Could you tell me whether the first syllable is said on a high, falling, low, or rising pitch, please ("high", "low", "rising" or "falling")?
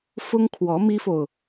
high